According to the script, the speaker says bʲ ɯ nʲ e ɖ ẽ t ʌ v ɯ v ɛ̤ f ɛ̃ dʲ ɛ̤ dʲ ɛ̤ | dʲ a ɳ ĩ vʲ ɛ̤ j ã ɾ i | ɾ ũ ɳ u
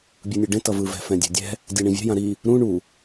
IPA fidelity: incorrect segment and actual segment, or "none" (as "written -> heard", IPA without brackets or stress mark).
none